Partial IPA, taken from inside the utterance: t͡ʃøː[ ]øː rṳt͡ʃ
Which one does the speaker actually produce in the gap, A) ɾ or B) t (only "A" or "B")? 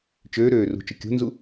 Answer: A